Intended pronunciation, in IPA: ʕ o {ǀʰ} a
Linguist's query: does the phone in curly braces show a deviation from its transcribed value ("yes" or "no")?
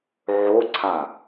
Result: no